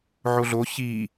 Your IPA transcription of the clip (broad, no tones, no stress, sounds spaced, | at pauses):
ʕ o ɮ o ç i